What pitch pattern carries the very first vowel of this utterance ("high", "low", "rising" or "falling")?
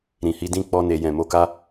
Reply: low